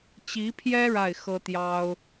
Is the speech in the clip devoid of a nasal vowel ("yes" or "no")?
yes